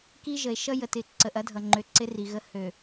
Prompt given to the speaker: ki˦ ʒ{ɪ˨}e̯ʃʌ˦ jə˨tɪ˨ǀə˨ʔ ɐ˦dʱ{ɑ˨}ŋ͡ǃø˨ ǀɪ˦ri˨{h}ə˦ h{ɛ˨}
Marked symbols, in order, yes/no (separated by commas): no, no, no, no